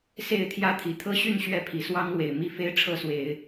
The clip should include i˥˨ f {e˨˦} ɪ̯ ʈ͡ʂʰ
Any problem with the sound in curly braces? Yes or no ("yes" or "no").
yes